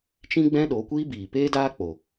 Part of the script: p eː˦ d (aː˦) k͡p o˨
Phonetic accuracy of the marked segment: correct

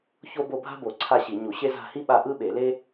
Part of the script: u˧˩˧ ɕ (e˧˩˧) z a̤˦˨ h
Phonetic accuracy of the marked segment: incorrect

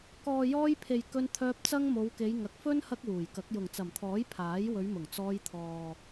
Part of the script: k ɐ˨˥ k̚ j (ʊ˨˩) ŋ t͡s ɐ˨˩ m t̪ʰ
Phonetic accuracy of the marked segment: correct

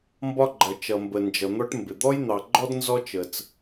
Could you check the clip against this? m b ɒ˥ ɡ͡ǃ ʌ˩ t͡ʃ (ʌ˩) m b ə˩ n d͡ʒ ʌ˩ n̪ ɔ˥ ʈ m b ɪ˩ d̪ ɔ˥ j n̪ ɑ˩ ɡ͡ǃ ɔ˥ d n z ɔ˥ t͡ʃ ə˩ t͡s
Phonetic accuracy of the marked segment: correct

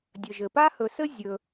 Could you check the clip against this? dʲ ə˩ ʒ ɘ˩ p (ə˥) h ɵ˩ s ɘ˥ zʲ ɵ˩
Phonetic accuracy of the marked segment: incorrect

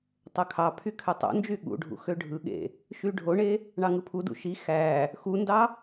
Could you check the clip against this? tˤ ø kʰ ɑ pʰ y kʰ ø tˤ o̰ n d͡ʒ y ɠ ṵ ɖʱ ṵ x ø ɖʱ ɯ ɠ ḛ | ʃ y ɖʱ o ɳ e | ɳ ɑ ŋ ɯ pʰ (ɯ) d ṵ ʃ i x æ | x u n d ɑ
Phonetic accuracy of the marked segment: incorrect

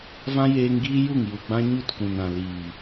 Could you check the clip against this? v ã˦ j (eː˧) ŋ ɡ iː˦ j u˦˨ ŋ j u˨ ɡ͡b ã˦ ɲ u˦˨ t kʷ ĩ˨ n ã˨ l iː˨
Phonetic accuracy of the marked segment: correct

